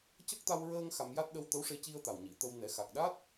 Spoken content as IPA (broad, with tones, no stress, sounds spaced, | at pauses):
c ə˦˥ k̚ t̪ a˧ w ɹ əː˧ ŋ x a˧ m j a˦˥ t̚ ɗ ə˧ w t̪ ə˧˥ w ʂ e˧ c i˧ ə̯ t̪ a˨˩ w ɲ i˨˩˨ t̪ ə˧ w n ɛ˨˩˦ x a˨˩ k̚ ɗ a˦˥ t̚